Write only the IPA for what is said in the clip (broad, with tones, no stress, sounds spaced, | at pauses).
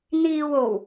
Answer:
n̪ iː˨ w o˨˩ w